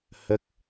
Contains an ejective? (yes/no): no